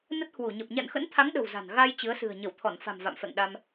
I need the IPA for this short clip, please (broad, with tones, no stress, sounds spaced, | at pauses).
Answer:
n ə˦˥ t̚ h w u˧˩ ɲ ə˨˩ p̚ ɲ a̰˧˨ n x ə̰˧˥ n t̪ʰ a˨˦ ŋ ɗ ə̤˨˩ w z a̤˨˩ n ɣ a˧ j t͡ɕ ɨ˨˦ ə̯ s ɨ̤˨˩ ə̯ ɲ ə˧˩ w t̪ʰ ɔ˧˩ n f a̤˨˩ m v a̰˧˨ m f ɛ̰˧˨ ŋ ɗ a˧ m